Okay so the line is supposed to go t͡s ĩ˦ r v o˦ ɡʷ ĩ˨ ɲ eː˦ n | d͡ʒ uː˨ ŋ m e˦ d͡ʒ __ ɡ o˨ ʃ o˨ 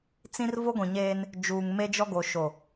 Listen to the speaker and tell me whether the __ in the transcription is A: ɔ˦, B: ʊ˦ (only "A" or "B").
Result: A